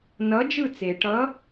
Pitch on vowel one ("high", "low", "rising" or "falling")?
rising